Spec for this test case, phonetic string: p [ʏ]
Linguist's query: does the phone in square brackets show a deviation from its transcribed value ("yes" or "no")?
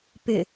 no